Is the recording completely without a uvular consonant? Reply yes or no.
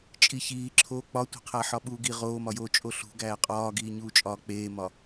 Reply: no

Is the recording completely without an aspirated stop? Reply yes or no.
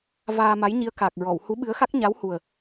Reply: yes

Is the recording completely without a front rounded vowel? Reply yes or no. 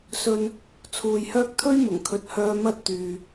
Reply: no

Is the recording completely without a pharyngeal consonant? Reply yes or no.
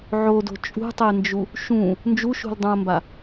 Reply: no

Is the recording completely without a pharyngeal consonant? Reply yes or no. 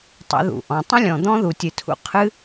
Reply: yes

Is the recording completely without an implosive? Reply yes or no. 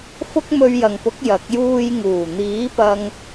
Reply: yes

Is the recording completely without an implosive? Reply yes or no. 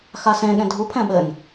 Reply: no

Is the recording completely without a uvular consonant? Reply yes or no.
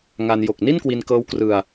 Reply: yes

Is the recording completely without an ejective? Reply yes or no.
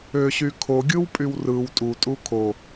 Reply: no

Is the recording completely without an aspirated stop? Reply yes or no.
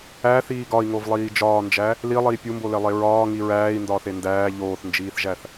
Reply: yes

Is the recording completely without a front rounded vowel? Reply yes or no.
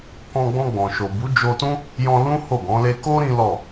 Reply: yes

